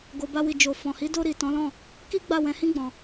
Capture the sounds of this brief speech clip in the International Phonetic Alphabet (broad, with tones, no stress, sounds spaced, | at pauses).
ɡ o˨ b a˧ w i˨ d͡ʒ o˨ f ɔ̃˨ h i˨˦ d o˧ ɾ i˨ t ɔ̃˨˦ l ɔ̃˦˨ | k i˦ ɡ͡b a˦˨ w ɛ̃˧ h ĩ˦ ɡ͡b ɔ̃˧